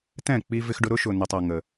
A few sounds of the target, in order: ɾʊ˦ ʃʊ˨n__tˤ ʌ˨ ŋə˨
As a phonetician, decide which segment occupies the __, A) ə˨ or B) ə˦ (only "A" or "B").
A